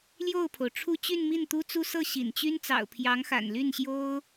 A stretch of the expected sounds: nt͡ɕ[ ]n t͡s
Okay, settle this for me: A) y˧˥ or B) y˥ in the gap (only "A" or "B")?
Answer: B